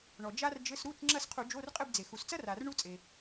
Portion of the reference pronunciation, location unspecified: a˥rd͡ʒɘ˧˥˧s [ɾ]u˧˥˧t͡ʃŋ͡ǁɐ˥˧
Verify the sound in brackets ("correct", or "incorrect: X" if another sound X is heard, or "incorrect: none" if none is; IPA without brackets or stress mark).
correct